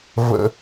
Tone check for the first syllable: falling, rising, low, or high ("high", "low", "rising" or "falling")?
high